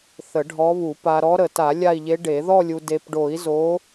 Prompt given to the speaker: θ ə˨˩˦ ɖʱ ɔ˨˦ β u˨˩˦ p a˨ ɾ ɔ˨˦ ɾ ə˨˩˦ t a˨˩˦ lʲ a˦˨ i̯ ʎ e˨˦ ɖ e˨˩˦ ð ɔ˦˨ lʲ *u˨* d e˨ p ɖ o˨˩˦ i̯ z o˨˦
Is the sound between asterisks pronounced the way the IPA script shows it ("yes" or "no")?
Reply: yes